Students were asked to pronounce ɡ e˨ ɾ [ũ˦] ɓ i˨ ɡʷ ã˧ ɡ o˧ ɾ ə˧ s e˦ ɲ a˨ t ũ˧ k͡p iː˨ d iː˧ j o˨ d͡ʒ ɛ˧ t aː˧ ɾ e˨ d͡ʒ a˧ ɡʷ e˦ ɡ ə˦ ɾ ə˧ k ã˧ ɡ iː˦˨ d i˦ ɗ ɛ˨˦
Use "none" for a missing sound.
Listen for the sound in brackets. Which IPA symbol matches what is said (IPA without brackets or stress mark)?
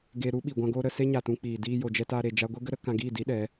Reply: u˦